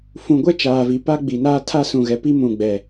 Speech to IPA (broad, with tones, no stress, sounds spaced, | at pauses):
f ũ˨ ɡʷ ɛ˦ t͡ʃ aː˨ v i˨ p a˦ ɡ͡b i˨ n aː˦ tʰ a˦ s ũ˨ ɣ ɛ˨ p i˦ m ũ˨ ɡ͡b ɛ˨